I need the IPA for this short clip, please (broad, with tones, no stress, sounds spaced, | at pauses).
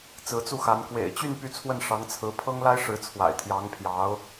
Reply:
t͡s ɹ̩˧˥ t͡s u˥˩ x a˧˥ n k w ḛ˨˩ ɪ̯ t͡ɕ y˥˧ n p y˥˧ t͡sʰ w ə˥˩ n ʂ ɑ˧˥ ŋ t͡sʰ ɹ̩˧˥ pʰ ɤ˥ ŋ l a˥ ɪ̯ ʂ ɻ̩˧˥ t͡sʰ w a̰˨˩ ɪ̯ t̪ʰ j ɑ˧˥ ŋ pʰ j ɑ˧˥ ʊ̯